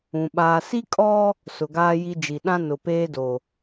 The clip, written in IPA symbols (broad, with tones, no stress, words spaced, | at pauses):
ũ˨ ɓaː˨ si˦kʼɔ˦ | sʊ˨ɡaː˦ji˦d͡ʒi˨ ɗã˦nʊ˨peː˦do˨